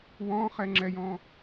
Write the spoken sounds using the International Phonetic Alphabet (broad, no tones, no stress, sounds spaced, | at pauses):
w ɔ̃ χ ɛ ŋ͡ǁ ɛ j ɔ̃